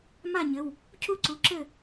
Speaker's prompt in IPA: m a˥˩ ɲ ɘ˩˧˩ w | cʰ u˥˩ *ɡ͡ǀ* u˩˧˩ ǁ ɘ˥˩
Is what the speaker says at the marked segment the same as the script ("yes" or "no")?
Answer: no